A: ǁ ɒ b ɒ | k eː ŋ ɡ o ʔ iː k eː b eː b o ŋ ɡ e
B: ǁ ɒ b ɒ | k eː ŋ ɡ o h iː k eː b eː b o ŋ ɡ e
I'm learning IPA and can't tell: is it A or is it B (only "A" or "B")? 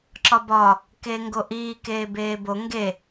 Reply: A